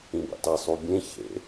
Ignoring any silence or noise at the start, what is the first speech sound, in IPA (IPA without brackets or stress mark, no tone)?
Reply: ĩ